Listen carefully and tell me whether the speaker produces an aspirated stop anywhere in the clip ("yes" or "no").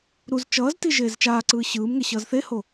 no